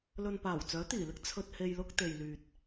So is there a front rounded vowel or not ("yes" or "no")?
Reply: yes